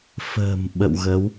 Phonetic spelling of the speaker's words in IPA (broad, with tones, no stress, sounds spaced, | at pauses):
f ə̤ː˨˩ m ɓ ə̰˧˨ w ɣ ə˨˦ w